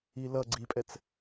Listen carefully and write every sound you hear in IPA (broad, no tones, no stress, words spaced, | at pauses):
ilʌ ɡ͡ǀipʼɛt͡s